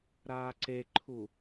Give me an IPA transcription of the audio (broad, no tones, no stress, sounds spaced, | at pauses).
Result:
ɾ aː ǀ e ǃʰ u